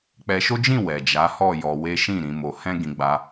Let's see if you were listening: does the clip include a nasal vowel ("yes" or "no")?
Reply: yes